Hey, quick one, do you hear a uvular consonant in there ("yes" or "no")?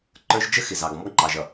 no